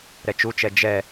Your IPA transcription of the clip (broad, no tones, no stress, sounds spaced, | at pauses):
ɾ ɛ t͡ʃ u t͡ʃ ɛ d͡ʒ ɛ